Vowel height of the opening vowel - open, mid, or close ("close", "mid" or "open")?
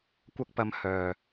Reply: open